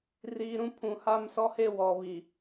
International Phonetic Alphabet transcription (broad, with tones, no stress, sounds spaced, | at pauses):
r iː˨ ɾ ũ˦ pʰ ũ˨ h a˦˨ m s ɔ˦ h e˦˨ w ɔ˨ β i˨